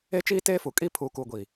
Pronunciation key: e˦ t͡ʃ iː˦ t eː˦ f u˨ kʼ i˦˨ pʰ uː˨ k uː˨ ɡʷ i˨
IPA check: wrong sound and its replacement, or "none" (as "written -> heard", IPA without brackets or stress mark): none